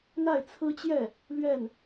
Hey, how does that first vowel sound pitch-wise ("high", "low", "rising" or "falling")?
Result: falling